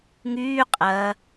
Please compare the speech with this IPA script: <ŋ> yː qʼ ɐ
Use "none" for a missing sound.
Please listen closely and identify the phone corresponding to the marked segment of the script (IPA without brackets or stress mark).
ŋ